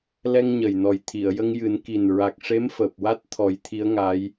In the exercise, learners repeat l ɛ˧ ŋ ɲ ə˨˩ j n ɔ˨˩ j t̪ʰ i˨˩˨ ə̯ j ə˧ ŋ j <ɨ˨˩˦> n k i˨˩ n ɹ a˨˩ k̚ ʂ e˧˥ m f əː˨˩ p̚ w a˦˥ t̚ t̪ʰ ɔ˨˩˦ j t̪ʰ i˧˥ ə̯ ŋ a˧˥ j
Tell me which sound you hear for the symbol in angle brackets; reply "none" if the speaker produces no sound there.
ɨ˨˩˦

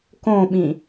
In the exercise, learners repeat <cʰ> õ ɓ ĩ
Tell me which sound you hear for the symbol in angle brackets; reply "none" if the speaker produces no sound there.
k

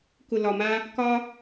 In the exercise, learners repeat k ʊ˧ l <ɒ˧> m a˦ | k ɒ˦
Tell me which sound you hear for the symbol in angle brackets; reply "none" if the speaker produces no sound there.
ɒ˧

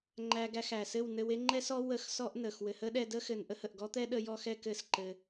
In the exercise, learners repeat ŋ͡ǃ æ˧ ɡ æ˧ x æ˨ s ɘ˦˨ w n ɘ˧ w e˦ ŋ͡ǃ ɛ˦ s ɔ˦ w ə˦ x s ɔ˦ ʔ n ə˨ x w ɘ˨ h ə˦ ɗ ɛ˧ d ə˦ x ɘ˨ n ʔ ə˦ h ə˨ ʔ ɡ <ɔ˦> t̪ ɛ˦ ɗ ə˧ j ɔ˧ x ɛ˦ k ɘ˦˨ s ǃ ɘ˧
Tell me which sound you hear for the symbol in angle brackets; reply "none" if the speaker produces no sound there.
ɔ˦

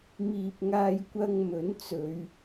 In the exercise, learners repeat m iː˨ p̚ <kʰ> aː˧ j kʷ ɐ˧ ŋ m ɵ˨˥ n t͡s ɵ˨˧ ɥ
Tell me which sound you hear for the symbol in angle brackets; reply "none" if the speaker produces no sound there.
ŋ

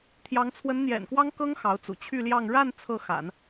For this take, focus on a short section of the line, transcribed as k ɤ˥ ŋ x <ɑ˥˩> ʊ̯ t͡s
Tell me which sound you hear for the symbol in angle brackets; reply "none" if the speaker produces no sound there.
ɑ˧˥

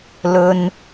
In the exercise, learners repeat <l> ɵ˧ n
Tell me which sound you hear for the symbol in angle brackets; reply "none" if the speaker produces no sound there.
l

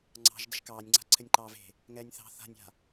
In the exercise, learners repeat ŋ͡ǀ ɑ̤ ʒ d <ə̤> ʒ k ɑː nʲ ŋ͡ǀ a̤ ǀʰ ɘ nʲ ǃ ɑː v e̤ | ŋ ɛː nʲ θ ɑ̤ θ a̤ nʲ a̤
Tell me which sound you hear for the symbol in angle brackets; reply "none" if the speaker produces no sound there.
ə̤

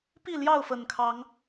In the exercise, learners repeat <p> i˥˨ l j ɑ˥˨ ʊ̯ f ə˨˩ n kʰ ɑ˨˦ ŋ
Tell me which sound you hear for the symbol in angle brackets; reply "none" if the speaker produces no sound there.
p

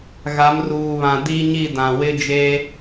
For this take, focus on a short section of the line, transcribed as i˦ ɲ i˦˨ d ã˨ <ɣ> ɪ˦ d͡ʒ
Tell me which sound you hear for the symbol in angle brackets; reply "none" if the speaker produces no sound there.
w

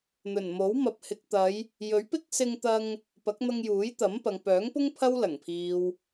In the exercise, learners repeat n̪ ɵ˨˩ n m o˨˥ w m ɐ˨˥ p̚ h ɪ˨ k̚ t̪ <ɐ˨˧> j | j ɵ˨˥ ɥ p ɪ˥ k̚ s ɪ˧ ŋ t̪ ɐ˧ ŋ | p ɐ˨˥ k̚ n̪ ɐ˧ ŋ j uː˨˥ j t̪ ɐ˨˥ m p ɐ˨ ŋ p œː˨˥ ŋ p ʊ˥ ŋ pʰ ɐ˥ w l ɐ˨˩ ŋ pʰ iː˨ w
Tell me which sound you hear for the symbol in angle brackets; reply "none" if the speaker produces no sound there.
ɐ˨˧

